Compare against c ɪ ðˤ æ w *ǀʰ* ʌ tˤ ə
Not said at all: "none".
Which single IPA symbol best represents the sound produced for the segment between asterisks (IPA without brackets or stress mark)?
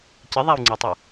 ŋ͡ǀ